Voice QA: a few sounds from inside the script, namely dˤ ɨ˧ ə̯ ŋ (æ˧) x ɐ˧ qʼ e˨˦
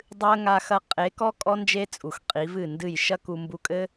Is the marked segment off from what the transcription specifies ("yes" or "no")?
yes